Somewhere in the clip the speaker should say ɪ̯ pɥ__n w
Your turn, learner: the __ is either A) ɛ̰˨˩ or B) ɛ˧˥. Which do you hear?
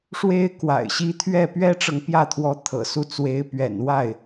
A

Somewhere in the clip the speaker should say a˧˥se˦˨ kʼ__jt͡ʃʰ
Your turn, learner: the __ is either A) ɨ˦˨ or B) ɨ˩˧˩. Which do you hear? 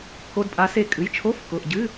B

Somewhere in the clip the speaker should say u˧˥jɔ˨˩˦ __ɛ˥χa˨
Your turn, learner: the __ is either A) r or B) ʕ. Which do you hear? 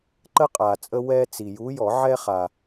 B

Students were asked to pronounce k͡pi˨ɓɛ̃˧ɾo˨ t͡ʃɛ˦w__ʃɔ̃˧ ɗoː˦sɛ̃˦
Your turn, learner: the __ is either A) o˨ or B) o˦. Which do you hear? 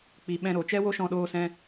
B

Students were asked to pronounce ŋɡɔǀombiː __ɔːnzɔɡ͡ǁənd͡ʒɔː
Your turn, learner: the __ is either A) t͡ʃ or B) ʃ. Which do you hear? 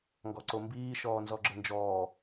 B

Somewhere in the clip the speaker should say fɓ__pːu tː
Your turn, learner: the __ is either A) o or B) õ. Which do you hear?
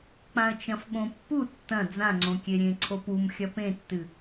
B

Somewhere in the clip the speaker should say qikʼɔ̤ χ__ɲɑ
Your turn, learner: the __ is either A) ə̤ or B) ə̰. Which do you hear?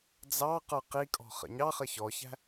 B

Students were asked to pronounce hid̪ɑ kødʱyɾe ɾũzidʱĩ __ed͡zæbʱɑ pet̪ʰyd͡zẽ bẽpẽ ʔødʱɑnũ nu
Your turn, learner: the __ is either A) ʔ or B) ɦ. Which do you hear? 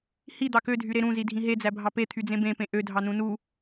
B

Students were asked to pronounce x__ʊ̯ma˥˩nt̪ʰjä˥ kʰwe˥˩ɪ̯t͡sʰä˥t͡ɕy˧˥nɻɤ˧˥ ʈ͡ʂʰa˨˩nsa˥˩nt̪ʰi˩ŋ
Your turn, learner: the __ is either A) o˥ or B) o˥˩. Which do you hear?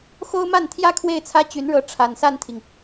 A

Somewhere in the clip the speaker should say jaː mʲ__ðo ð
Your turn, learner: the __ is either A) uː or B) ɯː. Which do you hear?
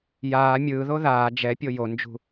B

